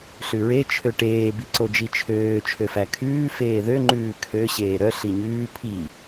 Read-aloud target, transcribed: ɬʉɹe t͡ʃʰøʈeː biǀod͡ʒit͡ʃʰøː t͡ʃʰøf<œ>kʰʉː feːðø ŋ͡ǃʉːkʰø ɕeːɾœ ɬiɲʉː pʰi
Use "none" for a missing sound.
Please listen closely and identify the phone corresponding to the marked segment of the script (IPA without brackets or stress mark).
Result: æ